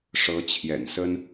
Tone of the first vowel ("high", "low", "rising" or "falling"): rising